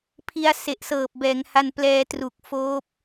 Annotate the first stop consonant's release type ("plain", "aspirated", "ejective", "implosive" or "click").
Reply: aspirated